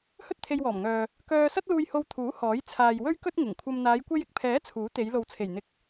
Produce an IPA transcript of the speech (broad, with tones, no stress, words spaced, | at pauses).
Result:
hɵ˥t̚t̪ʰe˧jwɔː˨˩mŋœː˨ | kœː˧ sɐ˥t̚luː˧jho˧w t̪ʰuː˨˥ hɔː˨˥j t͡sʰaː˨jwɵ˥ɥkɵ˥t̚ ŋɪ˨˩ŋkʷʰɐ˧m n̪aː˨˧jkʷe˧jɪ˨k̚pʰɛː˨˥ t͡sʰuː˨˥ t̪e˨˧j lo˨wt͡sʰe˨˩j n̪ɪ˧k̚